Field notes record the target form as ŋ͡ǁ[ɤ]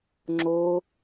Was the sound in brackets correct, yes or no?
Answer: no